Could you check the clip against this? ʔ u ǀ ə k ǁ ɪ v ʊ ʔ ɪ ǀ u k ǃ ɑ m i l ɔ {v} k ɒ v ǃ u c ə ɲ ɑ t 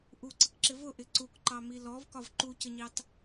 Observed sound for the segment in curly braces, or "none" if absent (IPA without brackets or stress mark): v